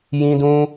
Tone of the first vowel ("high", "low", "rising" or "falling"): high